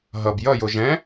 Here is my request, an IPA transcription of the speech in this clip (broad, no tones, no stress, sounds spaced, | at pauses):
ɦ ʌ b j ʌ j o ʒ ɛ̃